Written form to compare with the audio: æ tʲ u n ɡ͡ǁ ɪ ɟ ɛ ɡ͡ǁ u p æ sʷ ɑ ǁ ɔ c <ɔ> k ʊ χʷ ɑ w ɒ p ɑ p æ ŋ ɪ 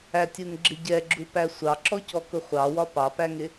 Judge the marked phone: correct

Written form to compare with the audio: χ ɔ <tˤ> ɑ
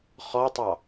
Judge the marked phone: correct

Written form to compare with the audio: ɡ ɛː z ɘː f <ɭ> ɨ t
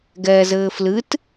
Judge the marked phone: incorrect: l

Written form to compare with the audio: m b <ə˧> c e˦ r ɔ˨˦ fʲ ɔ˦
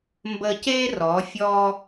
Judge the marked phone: correct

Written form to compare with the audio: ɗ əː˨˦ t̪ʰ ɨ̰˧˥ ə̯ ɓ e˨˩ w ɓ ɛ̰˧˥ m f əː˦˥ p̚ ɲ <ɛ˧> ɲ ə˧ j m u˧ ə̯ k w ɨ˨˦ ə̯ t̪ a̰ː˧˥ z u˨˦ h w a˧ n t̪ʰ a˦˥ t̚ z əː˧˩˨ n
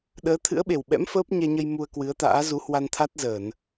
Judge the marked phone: correct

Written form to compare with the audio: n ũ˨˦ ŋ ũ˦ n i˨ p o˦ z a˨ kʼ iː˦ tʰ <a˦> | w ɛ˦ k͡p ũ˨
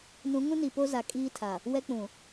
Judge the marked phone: incorrect: a˨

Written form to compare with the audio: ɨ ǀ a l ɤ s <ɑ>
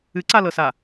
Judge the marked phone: incorrect: a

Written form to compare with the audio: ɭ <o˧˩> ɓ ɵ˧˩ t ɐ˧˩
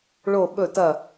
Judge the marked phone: correct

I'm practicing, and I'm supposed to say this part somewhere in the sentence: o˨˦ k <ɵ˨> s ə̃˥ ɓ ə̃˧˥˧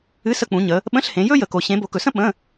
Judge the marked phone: correct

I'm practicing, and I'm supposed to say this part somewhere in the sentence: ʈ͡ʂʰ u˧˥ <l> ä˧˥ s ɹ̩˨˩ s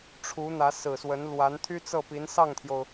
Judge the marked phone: incorrect: n̪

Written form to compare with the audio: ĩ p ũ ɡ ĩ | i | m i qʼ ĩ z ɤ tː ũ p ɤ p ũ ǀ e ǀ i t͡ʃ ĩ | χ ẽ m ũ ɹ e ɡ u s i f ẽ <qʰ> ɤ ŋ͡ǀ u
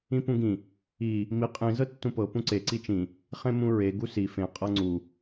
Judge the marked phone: incorrect: qʼ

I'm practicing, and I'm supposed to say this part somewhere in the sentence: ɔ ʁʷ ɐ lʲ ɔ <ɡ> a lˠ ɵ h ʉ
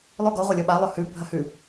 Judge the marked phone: incorrect: ɓ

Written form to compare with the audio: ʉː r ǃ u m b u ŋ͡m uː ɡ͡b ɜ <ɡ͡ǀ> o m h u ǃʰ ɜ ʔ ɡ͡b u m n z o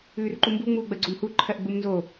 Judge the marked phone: correct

